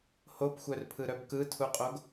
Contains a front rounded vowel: yes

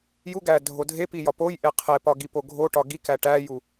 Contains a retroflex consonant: yes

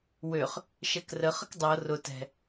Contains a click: no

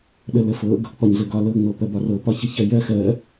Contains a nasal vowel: no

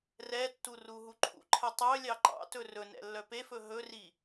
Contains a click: yes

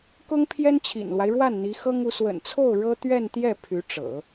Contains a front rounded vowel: yes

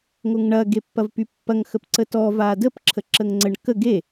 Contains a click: yes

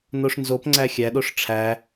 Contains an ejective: no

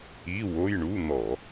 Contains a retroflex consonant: yes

